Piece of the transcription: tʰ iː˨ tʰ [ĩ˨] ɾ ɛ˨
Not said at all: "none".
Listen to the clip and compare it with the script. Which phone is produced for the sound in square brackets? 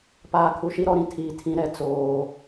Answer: ĩ˨˦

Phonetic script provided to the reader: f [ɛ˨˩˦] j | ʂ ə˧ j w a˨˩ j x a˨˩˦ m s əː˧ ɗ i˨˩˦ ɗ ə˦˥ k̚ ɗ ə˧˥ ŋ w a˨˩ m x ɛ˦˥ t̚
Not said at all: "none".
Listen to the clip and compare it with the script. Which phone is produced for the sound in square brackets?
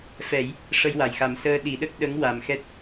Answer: ɛ˨˩˦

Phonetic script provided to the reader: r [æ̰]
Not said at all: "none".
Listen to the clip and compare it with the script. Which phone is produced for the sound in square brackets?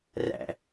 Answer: æ̰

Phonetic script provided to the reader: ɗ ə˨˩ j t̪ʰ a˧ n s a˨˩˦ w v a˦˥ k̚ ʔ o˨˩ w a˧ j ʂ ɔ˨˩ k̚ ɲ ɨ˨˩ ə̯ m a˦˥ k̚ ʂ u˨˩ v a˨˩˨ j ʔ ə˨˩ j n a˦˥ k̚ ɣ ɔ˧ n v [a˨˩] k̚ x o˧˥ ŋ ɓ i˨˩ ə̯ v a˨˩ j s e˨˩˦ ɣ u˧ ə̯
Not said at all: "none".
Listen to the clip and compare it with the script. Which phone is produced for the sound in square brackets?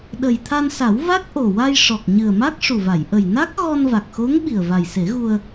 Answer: a˨˩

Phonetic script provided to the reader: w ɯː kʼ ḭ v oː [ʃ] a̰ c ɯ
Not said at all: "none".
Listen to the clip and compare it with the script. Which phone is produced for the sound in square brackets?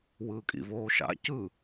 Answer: ʃ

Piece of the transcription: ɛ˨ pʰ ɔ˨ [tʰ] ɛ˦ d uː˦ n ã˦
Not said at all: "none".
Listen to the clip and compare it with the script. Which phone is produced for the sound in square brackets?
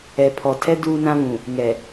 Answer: tʰ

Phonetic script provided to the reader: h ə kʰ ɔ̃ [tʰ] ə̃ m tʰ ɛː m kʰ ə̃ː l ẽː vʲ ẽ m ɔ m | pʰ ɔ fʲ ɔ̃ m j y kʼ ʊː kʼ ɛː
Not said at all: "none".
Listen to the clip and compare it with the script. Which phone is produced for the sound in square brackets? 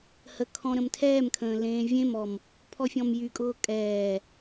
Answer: ɾ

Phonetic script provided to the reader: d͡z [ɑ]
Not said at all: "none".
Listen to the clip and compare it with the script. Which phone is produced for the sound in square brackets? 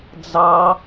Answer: ɑ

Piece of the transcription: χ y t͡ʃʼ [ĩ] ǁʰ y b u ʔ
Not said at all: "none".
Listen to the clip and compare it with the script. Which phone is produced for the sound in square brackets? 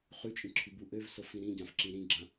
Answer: ĩ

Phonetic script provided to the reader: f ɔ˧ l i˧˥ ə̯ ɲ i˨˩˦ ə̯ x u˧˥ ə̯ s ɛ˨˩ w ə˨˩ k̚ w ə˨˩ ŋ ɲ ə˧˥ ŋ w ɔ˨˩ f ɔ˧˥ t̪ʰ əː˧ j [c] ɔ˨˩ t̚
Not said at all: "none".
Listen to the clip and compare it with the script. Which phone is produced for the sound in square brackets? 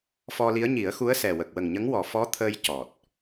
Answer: c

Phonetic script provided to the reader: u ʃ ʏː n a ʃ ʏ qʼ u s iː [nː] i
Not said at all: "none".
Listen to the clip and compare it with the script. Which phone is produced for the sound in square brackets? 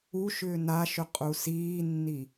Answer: nː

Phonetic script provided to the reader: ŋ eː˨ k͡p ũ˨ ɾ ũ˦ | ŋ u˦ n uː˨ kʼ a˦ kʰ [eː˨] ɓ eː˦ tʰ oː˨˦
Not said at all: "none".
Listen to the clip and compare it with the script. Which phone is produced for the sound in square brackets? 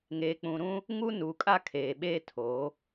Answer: eː˨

